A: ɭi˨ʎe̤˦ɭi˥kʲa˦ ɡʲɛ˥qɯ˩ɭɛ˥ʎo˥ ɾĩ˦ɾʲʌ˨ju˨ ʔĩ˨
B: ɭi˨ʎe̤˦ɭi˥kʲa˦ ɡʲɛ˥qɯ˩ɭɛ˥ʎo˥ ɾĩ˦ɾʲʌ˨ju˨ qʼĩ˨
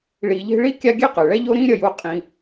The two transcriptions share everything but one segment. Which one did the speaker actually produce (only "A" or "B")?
B